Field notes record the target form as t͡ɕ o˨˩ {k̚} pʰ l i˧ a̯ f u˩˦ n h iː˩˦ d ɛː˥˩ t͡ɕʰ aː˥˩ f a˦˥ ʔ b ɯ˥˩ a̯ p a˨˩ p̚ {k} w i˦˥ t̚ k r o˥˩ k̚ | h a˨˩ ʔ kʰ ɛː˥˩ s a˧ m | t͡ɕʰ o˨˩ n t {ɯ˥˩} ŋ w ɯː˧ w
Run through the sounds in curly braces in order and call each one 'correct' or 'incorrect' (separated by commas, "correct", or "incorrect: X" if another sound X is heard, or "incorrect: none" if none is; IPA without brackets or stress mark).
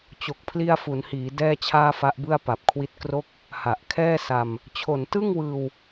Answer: correct, incorrect: kʰ, correct